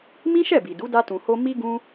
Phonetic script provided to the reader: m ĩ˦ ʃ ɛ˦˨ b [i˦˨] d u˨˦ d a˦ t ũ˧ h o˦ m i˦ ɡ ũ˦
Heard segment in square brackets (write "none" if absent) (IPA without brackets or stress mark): i˨